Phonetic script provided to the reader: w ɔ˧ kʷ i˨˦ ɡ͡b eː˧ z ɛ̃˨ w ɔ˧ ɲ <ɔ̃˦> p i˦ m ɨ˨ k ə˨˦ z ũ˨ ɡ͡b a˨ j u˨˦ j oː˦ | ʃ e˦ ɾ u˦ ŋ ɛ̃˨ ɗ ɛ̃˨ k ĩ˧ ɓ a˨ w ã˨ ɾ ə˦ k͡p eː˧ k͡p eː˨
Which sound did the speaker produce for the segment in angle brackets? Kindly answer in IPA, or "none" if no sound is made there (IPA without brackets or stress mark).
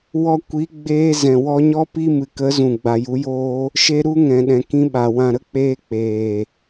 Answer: ɔ˦